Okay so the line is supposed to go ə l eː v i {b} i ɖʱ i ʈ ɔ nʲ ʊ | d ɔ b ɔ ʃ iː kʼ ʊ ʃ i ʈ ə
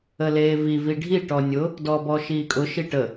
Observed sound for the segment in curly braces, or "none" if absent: v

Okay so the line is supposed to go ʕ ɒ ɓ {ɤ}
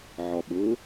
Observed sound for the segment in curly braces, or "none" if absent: ɤ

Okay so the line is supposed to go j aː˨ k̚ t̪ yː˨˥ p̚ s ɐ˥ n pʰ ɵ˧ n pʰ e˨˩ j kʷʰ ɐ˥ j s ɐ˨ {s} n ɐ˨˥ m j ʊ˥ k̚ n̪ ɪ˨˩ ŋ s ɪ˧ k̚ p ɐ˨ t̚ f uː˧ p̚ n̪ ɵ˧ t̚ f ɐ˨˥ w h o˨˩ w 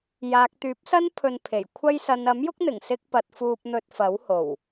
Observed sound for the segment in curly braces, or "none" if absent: none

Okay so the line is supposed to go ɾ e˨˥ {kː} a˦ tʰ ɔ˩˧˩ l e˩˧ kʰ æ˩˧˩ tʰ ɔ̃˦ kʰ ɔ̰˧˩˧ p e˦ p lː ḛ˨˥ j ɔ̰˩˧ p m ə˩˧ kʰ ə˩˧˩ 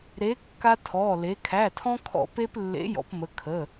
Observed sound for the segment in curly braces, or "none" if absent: kː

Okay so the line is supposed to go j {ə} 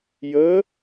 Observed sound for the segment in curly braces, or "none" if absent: ə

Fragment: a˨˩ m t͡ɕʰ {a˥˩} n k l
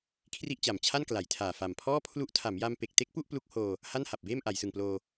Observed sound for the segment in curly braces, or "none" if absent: a˥˩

